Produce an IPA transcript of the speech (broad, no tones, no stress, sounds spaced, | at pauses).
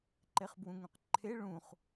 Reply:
ǃ e χ b w ũ ŋ ũ q ǃʰ e ɭ ũ χ